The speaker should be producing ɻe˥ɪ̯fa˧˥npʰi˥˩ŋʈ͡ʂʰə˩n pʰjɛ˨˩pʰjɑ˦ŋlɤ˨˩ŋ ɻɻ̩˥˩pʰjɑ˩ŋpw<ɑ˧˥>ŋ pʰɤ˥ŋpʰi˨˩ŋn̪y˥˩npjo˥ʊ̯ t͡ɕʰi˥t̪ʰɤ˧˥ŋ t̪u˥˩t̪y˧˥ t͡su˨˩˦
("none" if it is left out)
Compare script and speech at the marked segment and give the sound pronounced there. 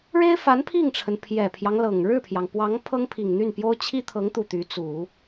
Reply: ɑ˧˥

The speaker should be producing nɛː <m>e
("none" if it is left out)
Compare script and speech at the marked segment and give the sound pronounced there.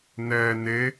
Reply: n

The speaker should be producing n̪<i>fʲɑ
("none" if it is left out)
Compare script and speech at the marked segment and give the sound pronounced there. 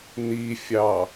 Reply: i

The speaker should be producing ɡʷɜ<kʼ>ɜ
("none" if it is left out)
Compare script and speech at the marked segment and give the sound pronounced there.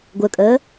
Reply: kʼ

